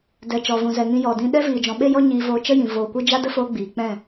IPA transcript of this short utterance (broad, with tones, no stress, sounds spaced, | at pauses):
d ɛ˨ t͡ʃ ɔ˨ v ũ˨ z ɛ˨ ŋ ĩ˧ j ɔ˨ d ĩ˧ ɗ ɛ˦ v iː˨ d͡ʒ ɔ̃˨ ɓ e˦ j ɔ˦ ɲ iː˧ v oː˧ t͡ʃ ə˦ j ĩ˨ v oː˨ kʷ ɨ˦ d͡ʒ a˦ d ə˦ f oː˧ ɡ͡b iː˨ k͡p ɛ̃˦˨